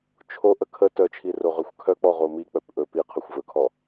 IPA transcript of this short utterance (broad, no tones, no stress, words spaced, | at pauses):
t͡ʃʰo ʔəkʰə tœt͡ʃʰi roʁœxʷkʰœk͡pɔ ʁomi k͡pœpʔɵ pi qʰœxʷvɵkʰɔ